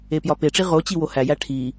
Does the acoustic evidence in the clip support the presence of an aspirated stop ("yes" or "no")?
yes